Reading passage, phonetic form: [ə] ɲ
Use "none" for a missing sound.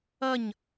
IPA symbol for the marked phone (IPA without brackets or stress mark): ʌ